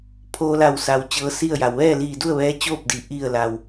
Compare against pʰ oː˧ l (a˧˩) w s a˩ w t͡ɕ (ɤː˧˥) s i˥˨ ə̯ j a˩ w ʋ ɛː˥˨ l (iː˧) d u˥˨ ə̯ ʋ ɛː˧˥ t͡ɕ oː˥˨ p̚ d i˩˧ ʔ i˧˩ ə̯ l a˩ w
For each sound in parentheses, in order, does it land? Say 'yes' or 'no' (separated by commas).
yes, yes, no